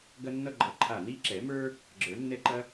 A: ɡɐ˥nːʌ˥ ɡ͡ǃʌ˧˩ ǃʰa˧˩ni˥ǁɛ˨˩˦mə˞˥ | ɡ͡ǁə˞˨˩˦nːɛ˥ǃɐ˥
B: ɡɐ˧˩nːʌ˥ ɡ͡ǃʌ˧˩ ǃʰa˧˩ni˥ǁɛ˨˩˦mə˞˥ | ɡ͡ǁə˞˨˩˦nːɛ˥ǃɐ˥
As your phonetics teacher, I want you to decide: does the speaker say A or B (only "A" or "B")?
A